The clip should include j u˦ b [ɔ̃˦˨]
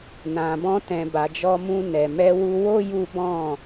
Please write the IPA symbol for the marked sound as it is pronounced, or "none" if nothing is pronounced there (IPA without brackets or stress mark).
ɔ̃˦˨